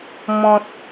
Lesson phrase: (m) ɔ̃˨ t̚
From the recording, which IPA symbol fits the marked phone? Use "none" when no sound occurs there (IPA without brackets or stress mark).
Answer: m